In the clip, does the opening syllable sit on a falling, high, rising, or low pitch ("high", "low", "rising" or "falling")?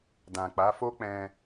low